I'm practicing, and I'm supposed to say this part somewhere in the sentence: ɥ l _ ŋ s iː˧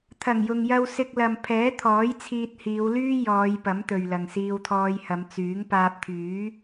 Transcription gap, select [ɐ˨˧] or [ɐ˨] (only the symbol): ɐ˨